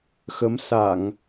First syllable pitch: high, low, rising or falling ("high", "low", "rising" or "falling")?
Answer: rising